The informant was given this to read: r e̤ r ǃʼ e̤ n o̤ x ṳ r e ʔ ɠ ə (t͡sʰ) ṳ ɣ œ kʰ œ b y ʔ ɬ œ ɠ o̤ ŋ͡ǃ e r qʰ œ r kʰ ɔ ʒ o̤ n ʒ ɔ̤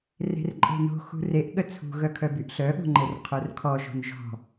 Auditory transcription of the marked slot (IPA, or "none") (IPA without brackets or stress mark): t͡sʰ